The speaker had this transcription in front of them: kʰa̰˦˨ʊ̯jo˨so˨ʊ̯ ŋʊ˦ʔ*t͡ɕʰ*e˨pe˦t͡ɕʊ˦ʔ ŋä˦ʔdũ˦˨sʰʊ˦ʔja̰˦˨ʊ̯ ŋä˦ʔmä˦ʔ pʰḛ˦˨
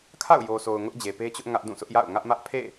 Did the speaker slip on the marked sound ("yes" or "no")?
yes